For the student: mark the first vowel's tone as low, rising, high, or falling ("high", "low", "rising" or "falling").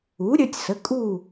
rising